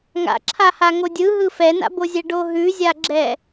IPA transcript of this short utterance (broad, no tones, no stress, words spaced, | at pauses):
ŋa̰ǁʰaha ŋodʲɯɦɯ fɛna̰bozʲɛ ɖoɦʉzʲaɡ͡ǁɛ